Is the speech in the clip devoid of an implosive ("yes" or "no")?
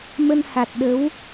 no